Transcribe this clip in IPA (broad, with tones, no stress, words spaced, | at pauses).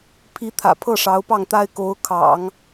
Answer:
pʰi˧˥t̪ʰä̰˨˩ pʰɤ˥˩ʂɑ˧˥ʊ̯pɑ˥˩ŋt̪a˥ɪ̯ ko˧˥ʊ̯ kʰɑ̰˨˩˦ŋ